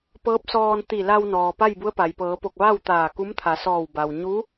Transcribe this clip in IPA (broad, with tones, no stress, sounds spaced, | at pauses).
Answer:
p ɤː˧˥ p̚ s ɔː˧ n t̪ i˧˩ l a˧ w n ɔː˩ p a˥˨ j b u˧˥ ə̯ p a˩ j p ɤː˩˧ p o˧˩ k̚ ʋ a˥˨ w t̪ aː˧˩ k u˧˥ m t̪ʰ a˩˧ s ɔː˧˩ w b a˩ w ɲ uː˧˥